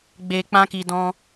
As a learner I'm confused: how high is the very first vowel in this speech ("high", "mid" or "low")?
mid